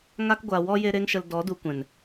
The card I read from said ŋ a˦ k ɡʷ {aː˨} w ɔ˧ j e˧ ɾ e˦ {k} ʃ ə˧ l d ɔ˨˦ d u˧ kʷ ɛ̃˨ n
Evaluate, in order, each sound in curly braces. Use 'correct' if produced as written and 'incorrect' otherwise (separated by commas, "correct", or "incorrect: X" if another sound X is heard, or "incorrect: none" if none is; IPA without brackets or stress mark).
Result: incorrect: a˨, incorrect: ŋ